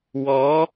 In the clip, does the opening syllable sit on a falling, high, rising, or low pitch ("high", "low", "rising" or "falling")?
rising